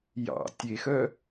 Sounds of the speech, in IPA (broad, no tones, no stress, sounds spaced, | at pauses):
j ɑ̰ tʲ e x œ